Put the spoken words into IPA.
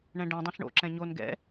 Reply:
ɳɛ̃ɖɛ̃ dˤɛ̃ɬɳo̰ ǁɛ̃ɲon ɡɛ̰

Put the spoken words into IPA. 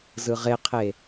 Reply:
zɯʁeqʰe

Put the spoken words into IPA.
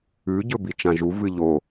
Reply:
ʉ ɟɵbit͡ʃãʒu vɨʎo

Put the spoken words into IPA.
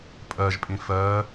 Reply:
pʼɜʒpʼĩ fɜ

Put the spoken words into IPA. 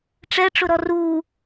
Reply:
ʈ͡ʂɛʈ͡ʂʊɾɔ ru

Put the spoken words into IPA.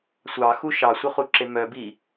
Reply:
sʷɑxu ʃɑsʷœχuǁe mœbi

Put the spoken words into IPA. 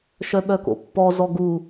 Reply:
ʃœɓœko̰pːɔ zɔɡu

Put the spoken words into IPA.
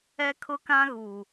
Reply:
ɛ˦kʰʊ˦kã˦ɣuː˨

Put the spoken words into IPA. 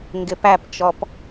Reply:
ŋɡɪpæpt͡ʃɔp

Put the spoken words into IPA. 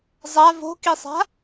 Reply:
zˤa vo̤kisˤa̤

